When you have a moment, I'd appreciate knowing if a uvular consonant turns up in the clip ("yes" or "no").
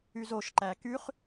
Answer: yes